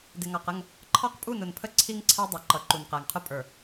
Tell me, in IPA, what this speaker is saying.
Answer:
dɪ˨ŋɑ˨qə˦˨ŋ | ǃʰɑ˦qpʼu˦˨nʊ˨npʰə˦ ǀʰi˦ŋǀʰæ˦dˤʌ˨ ǃʌ˨ǃu˨nqæ˨ŋqʰʊ˦ pʼə˞˨

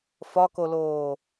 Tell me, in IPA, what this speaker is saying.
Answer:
fɒkoloː

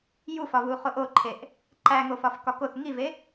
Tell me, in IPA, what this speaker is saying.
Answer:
jufɒvu χoʔoǃʰeʔ | ǃæŋofɒf kɒkoθ ŋive

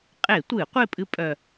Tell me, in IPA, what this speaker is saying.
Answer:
qʼe˧˩˧tʷɨ˧˩˧ qʷe˥˨ pʼɨ˦ pʼœ˧˩

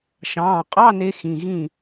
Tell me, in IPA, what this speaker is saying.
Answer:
ʃɑ̃ː˩˧˩qʼɑ˧˥˧ne˧ xĩ˩˧˩ɣĩ˥˩

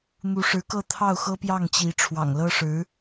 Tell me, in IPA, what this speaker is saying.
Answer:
n̪u˧˥ʂɻ̩˧˥kɤ˥˧ t̪ʰɑ˥˩ʊ̯xɤ˥pjɑ˥˩ŋt͡ɕi˧˥ ʈ͡ʂʰwɑ̰˨˩ŋlɤ˥ʂɻ̩˧˥

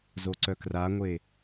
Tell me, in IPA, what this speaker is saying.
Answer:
zoǀœkraŋʷe

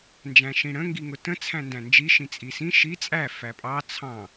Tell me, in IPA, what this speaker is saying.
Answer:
nd͡ʒæ̃ʃĩɽə̃ ŋɡiŋʊtə̃ t͡sʰæ̃ndæ̃nd͡ʒi ʃĩt͡sʼisĩ ʃi t͡sʼæ fæpʼɑ t͡sʰɑ̃

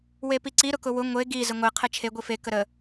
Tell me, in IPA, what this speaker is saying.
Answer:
wepiǀi ɾʊkʊwʊ ŋʷe ɡi zəŋʷe qʰet͡ʃʰe ɡʷife kəɾə

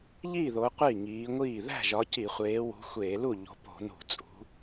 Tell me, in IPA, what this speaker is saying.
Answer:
ʎiː˥˩ðo˨˦ qʷi˥˩ŋiː˨˦ŋʷiː˥˩ ðæ̤˥˩ ʒɒ˨˦ci˧˩˧ χʷeː˨˦wṳ˨˦xʷeː˧˩˧lu˥˩ ʎo̤˨˦po̤˧˩˧ nṳ˧˩˧t͡sʼṳ˨˦

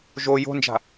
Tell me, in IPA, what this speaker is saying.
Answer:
ʒo jo̤nd͡ʒa̤

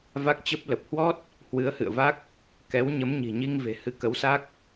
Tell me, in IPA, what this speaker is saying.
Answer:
va˦˥k̚t͡ɕə˦˥p̚ lə˨˩p̚hwɔ˦˥t̚ | hwɨ˨˦ə̯hɨ̰˧˨ə̯va˦˥k̚ | kɛ˨˦w ɲə˨˦mɲi̤˨˩ɲi˧ŋ ve̤˨˩hɨ˨˦kə˨˦wsa˦˥k̚

